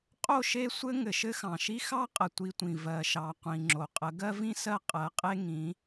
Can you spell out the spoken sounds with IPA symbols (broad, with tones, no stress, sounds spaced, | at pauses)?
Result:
qʼ o˦˨ ʃ e˦ sʷ ɘ˦ ŋ ɘ˨ ʃ ɘ˦ x ɑ̃˨ ʃ i˦ x ɑ˦ qʼ ə˨ tʷ i˦ tʷ ĩ˨ v ɜ˨ ʃ ɑ˨ qʷ ĩ˨ ŋ͡ǁ o˨ qʼ ə˨˦ ɡ ɜ˦ v ĩ˦ s ɜ˦ qʼ ɜ˨˦ qʼ e˦ ŋ ĩ˨˦